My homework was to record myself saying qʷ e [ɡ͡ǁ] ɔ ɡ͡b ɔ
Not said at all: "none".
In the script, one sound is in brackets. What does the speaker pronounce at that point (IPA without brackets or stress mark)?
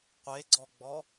ɡ͡ǀ